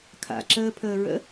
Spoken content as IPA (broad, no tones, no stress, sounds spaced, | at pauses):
kʰ a̰ ǁ əː pʰ əː ɹ ə̰